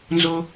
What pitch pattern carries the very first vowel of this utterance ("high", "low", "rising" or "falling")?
high